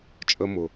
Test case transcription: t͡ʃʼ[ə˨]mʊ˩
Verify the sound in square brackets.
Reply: correct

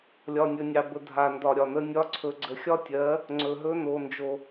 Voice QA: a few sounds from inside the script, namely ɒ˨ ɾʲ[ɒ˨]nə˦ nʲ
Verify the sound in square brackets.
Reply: correct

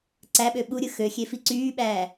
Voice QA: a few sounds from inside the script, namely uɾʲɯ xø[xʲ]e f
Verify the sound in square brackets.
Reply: correct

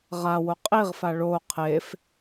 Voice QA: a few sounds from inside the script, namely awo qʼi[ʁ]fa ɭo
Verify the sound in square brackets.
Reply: correct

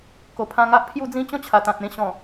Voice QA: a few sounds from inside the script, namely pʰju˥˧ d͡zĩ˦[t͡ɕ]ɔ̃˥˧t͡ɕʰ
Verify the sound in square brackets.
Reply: correct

